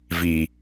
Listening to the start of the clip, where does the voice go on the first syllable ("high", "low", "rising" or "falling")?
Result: low